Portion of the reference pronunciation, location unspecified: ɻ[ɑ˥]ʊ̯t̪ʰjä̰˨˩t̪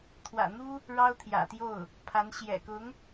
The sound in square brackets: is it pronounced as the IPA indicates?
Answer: yes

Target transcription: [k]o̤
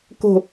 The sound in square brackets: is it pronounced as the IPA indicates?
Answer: yes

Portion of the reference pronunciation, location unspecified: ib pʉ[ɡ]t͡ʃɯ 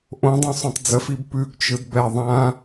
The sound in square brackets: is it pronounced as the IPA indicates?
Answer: yes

